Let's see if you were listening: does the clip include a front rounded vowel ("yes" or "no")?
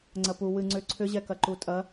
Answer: yes